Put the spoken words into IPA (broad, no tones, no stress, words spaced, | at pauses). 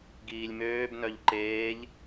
ɡiːlʲmøːbnœʎ ǃeːʎ